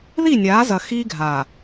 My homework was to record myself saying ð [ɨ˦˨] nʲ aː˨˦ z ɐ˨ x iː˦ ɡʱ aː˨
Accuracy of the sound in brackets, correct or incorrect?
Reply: incorrect